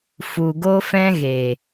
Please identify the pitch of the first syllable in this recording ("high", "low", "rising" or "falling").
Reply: low